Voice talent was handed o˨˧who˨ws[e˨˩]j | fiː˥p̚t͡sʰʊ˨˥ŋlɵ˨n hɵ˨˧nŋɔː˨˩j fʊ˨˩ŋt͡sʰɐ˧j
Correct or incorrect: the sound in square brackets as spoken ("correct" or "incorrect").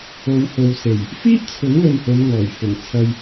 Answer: correct